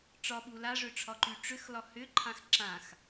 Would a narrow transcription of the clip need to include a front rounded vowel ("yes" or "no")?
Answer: yes